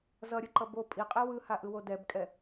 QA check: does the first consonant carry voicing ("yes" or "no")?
yes